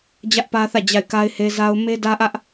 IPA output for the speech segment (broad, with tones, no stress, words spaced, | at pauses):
d͡ʑä˦ʔpä˦θä˦˨ d͡ʑa˦˨ɪ̯ ka˦ɪ̯ he˦za˦ʊ̯ me˦dä˦ʔä˦ʔ